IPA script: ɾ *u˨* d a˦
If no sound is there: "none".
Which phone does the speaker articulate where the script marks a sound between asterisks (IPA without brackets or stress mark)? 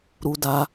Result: u˦